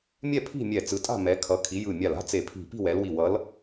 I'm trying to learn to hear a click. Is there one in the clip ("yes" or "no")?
no